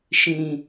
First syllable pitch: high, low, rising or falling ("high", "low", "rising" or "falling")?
low